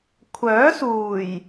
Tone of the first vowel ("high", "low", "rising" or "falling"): rising